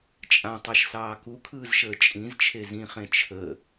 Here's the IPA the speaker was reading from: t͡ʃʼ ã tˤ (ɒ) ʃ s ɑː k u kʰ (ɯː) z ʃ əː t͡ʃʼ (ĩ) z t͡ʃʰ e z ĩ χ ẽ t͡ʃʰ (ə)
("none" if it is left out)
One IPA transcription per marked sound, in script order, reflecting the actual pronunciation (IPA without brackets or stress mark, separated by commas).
ɑ, ɯː, ĩ, ə